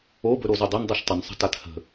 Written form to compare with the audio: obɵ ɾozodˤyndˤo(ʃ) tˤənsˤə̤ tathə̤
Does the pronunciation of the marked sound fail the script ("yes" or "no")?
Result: no